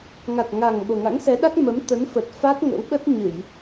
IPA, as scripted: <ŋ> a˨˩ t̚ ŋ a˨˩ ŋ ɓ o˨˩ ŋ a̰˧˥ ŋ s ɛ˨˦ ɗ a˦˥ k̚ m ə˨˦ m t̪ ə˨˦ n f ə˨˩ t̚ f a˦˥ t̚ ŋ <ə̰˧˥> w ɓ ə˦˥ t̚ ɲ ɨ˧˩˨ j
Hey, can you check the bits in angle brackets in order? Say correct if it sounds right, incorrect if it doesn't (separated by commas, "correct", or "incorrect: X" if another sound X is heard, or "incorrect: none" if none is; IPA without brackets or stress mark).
correct, correct